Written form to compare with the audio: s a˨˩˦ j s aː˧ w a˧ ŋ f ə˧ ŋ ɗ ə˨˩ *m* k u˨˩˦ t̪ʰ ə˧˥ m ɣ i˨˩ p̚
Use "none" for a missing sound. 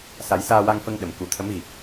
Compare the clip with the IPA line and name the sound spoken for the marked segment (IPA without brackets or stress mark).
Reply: m